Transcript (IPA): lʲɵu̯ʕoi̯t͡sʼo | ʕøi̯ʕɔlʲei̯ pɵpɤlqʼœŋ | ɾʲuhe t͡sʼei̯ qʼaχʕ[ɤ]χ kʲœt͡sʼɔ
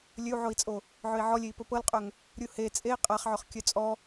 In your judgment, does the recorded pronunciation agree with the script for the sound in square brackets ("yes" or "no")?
no